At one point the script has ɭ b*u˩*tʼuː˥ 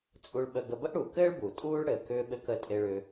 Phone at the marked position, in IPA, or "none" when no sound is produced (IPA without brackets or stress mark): u˩